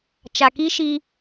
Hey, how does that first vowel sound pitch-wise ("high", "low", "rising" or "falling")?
low